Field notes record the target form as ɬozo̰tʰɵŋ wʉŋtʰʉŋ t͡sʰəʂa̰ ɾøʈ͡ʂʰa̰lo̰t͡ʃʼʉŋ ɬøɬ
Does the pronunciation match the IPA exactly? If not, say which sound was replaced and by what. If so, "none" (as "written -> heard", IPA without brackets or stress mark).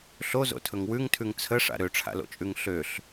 none